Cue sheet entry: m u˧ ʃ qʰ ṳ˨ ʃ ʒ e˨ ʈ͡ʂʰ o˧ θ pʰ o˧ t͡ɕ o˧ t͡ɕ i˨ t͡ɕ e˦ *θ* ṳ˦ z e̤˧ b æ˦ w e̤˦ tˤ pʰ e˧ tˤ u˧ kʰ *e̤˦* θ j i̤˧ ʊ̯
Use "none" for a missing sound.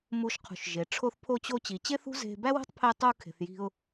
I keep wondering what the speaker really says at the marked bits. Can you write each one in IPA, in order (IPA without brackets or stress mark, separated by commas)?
θ, e̤˨